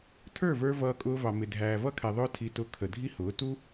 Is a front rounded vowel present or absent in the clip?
absent